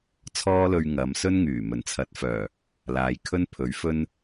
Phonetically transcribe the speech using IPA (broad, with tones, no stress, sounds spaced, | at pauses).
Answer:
t͡sʰ ɔː˥ l ɵ˧ ɥ ŋ ɐ˨˧ m s ɵ˥ n ŋ yː˨˩ m ɵ˨˩ n t͡sʰ ɐ˨˥ t̚ f œː˨˩ | l aː˨ j kʰ ɵ˥ n pʰ ɵ˨˥ ɥ f ɵ˥ n